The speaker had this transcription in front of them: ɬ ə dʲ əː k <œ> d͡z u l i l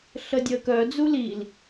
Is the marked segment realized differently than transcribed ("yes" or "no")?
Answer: no